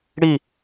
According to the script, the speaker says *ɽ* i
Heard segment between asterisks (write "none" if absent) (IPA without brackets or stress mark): ɽ